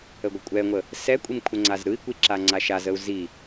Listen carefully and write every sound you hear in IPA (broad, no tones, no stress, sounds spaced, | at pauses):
ə ɡʷ ə kʷʼ ɛ ŋʷ ə | s ɛ kʷʼ i m kʷʰ ə ŋ͡ǀ a z ɾ ɯ i̯ kʷ i ǁ a ŋ͡ǀ a ʃ a z ə u̯ z i